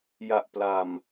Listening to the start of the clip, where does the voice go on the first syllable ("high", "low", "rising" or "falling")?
low